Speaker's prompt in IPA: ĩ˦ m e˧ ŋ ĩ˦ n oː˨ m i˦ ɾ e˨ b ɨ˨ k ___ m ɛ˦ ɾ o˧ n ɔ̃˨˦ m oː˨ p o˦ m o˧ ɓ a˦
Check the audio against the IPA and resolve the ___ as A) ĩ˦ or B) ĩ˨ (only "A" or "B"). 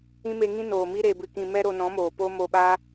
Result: B